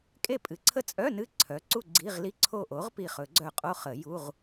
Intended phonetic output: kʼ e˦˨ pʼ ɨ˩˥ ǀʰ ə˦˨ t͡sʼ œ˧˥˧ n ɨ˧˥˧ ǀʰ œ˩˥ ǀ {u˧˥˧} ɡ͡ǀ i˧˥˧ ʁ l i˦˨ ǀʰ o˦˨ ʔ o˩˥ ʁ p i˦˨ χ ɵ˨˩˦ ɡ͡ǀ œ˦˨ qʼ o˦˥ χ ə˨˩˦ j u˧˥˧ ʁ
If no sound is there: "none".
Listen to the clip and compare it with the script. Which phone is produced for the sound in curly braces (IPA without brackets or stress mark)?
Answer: u˦˨